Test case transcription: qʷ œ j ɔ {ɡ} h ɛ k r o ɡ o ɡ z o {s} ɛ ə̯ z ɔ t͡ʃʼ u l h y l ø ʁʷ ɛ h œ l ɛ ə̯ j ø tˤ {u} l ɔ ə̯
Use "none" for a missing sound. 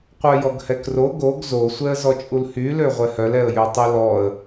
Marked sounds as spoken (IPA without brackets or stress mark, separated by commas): ɡ, sʷ, y